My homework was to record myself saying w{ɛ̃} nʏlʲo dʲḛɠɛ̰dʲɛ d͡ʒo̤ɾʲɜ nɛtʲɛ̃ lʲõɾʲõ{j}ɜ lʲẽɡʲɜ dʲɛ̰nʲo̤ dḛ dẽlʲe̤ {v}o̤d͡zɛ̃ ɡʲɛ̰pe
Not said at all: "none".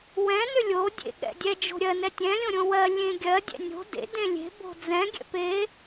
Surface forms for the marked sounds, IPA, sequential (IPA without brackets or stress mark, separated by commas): ɛ̃, w, b